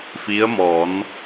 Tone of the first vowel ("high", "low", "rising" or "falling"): rising